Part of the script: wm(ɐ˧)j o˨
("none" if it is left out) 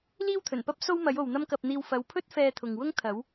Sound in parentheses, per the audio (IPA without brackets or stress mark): ɐ˨˥